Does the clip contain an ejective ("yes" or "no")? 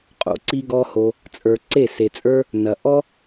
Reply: yes